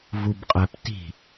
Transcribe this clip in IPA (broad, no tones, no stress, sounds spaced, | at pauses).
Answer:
v u b qʼ ɛ p t i̤